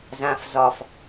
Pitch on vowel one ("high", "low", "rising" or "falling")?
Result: low